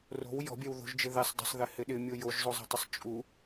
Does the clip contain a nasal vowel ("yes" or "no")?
no